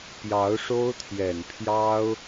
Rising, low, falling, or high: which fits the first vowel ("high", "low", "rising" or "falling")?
rising